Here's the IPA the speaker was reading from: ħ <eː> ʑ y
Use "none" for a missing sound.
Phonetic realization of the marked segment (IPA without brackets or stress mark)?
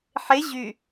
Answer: e